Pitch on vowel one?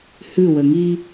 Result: falling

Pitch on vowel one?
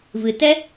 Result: low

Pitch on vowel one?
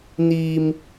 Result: high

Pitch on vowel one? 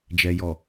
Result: low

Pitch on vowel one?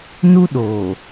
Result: high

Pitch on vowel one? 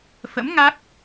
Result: rising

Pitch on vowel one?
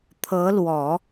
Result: rising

